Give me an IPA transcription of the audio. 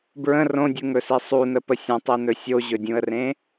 b ɹ ə̃ r õ dʲ u ŋ ɵ s i sˤ u n ə p ə sʲ ə̃ tˤ i n ɵ sʲ o ʑ ɵ dʲ ũ ə̯ r ẽ

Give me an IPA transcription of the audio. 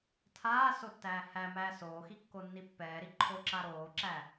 tʰ aː s o tː æː h æ m æː s oː x i kː o nː i pː ɛː ɾ i ǃʰ o ǁ a ɾ oː ǁ æ

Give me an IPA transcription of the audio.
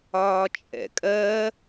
ɒː t͡ʃʼ ɛ̰ kʼ ɜ

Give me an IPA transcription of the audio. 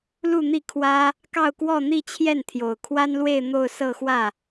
l u˥˧ n̪ i˥˩ kʰ w ä˥ | k ɑ˥˧ ʊ̯ k w ɔ˥˧ n̪ i˥˧ t͡ɕʰ j ɛ˥˩ n t̪ʰ j o˨˩ ʊ̯ kʰ w a˥ n l w e˥˧ ɪ̯ n̪ o˥˧ ʊ̯ s ɤ˥˧ x w ä˥˩

